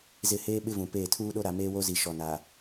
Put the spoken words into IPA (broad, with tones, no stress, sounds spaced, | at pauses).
z ɪ˦˨ h eː˦ ɓ ɪ˦ v ũ˨ p eː˦˨ tʰ uː˦ ɗ o˦ ɾ a˨ m eː˦ w o˦ z i˨ ʃ ɔ˨ n a˨